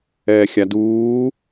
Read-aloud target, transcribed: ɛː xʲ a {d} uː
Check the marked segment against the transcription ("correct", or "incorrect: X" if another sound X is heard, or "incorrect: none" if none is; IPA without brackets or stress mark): correct